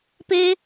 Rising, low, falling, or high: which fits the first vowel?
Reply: high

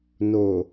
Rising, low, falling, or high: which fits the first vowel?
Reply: low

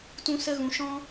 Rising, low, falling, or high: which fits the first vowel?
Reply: high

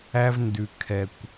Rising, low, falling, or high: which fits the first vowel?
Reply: high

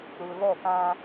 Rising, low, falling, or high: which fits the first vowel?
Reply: low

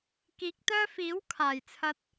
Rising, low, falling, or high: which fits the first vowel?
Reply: rising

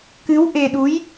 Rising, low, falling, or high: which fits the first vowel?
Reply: rising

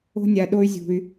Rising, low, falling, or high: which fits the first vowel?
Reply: high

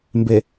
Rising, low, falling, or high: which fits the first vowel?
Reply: low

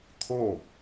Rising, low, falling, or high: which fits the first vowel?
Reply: falling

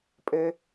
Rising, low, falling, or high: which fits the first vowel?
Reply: low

